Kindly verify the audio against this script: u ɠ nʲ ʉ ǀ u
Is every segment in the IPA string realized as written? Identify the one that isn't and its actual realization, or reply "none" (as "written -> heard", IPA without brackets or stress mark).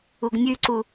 ɠ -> ɡ